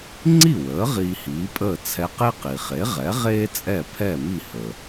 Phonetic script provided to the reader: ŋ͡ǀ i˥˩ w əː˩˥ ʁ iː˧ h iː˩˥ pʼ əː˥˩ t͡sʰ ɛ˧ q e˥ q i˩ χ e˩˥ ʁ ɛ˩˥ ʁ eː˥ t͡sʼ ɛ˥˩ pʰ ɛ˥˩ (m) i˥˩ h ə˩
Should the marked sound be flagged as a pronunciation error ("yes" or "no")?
no